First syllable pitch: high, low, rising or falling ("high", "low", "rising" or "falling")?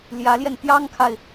rising